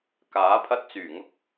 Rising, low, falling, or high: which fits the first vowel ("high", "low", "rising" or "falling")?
rising